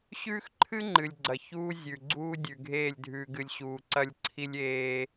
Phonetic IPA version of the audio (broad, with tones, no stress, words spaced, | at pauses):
ɕʉː˦xǃʰɨ˦ ŋ͡ǃɨ˨lʲɡ͡ǀɐ˨ çuː˦zʲʉ˨ɡ͡ǀuː˦ dʲʉ˨ɡʱeː˦˨lʲ dʱʉː˨ɡɨ˨lʲ ɕuː˨ǀɐ˦lʲ ǀʰi˦lʲ eː˦